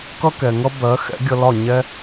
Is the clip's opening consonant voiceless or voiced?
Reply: voiceless